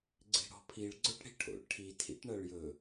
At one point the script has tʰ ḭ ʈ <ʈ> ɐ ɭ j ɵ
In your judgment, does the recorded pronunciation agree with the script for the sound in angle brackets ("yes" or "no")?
no